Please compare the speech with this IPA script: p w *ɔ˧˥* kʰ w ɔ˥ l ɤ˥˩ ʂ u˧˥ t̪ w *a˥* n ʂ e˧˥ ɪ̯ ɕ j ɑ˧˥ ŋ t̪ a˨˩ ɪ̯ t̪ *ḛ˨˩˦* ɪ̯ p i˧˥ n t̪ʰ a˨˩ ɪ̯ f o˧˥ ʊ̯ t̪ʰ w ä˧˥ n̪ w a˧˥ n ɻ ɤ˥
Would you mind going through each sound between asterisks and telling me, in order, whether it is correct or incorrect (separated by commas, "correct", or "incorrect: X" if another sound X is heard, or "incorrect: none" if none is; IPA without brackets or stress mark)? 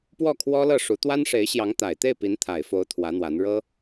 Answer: incorrect: ɔ˥˩, correct, incorrect: e˥˩